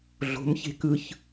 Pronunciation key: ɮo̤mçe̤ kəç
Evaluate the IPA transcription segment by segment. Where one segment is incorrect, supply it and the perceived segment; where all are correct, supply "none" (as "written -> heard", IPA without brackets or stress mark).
ə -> ɯ